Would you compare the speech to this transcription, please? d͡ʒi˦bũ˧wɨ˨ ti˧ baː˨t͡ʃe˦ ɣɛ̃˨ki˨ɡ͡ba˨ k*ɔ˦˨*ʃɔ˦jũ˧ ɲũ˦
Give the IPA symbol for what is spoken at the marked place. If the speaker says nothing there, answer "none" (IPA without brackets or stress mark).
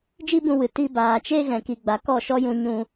ɔ˦˨